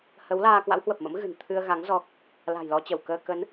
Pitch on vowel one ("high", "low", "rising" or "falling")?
rising